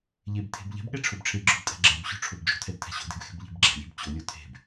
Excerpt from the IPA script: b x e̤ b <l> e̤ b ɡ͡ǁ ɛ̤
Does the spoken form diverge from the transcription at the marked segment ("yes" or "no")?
yes